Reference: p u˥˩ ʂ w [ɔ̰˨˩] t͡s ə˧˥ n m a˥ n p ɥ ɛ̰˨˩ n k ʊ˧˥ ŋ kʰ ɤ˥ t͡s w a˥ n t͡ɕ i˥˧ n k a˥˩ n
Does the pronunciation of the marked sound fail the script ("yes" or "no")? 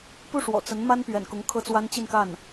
no